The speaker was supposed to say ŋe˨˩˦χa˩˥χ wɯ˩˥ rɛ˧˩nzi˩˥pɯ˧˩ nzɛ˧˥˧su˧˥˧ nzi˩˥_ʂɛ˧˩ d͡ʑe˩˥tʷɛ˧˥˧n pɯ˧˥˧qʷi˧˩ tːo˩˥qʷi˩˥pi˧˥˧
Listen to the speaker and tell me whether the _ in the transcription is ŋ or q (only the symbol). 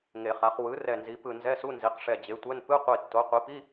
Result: q